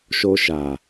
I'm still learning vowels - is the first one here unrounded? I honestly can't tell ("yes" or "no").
no